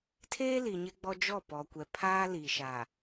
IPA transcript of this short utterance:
tʰ eː˦ l i˨ ɲ ɪ˦ ɡ͡b ɔ˦ d͡ʒ ɔ˦˨ p ɔ˨ kʷ ɛ˨ pʰ aː˦ l i˨ ʃ a˨

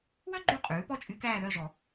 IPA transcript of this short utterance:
w œ˥ ɡ͡ǃ ʉ˦˨ qʼ ʉː˩˥ p ɔ˥ t͡ʃʼ y˧˥ k æː˦˨ ð œ˦˨ ʒ ɔ˨˩˦

